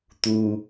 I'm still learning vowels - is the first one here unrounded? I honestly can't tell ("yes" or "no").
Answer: no